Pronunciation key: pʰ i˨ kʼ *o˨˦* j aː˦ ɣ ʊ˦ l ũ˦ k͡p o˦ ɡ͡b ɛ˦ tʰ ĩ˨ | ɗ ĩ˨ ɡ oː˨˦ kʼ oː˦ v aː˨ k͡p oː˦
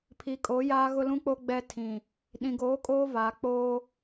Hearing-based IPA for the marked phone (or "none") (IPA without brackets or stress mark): o˨˦